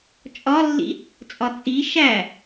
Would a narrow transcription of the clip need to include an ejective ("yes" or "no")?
yes